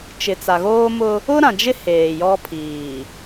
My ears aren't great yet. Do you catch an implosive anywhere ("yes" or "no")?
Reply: no